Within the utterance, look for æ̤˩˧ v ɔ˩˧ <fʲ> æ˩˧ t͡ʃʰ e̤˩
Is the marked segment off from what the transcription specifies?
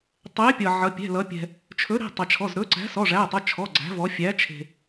no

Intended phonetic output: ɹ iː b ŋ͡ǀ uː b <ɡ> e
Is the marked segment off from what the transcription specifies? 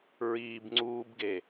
no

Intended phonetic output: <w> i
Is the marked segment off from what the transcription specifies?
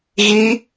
yes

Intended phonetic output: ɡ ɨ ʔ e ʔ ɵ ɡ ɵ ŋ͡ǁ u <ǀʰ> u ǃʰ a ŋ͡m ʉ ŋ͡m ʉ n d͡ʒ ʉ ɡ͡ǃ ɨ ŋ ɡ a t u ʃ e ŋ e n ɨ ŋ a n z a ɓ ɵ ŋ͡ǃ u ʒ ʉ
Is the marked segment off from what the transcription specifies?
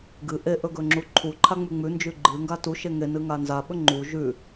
yes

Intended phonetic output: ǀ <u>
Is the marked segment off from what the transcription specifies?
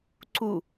no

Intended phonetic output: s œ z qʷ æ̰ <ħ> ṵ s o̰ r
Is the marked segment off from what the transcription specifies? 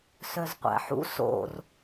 no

